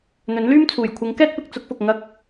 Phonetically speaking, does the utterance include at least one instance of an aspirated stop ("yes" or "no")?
yes